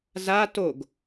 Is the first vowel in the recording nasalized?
no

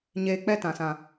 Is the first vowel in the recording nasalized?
no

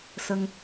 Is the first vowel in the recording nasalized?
no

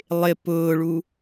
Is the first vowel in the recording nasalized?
no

